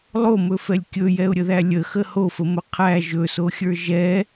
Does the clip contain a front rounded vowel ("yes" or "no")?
no